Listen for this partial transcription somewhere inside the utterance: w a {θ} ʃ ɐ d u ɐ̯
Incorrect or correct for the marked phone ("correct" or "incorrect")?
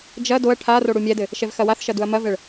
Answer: correct